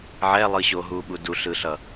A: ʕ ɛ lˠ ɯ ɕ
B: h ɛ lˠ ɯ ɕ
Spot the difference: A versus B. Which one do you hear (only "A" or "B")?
A